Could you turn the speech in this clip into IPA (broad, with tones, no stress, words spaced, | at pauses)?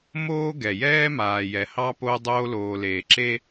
moː˦ɡɛ˨jɛː˦ maː˨jɛ˨hɑ˦ po˦dˤoː˦loː˨leː˨ ǁe˦